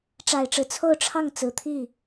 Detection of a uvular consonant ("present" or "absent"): absent